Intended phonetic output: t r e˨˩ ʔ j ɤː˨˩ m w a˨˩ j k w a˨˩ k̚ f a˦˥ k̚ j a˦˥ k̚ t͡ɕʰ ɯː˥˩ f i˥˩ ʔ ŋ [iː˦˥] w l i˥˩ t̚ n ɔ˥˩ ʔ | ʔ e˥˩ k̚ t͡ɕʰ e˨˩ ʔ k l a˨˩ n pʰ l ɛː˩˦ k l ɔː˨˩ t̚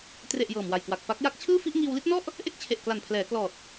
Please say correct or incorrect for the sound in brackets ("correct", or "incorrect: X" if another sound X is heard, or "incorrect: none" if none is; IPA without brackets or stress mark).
incorrect: iː˧